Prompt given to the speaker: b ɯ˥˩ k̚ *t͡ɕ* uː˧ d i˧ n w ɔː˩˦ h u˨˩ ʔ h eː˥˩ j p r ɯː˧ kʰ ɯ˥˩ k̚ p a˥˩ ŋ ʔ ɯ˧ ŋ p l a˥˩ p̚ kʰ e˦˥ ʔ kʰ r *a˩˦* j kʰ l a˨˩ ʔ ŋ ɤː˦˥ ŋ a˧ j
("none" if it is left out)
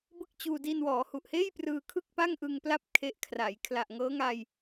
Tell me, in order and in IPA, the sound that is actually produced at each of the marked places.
t͡ɕ, a˩˦

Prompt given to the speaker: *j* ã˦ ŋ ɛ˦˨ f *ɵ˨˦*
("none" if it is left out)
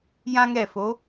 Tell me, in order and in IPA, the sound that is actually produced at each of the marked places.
j, o˨˦

